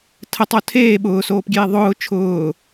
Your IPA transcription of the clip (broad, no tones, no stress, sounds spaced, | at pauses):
tʰ ə tˤ o tʰ eː ɓ ʊː s oː p ɡʲ eː ðˤ ʊː t͡ʃʰ ʊː